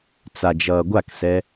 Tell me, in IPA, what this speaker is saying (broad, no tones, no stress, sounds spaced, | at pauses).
t͡s a d͡ʒ ʌː ɡʷ a k s ɛ